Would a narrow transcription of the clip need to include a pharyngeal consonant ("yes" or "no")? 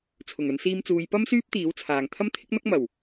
no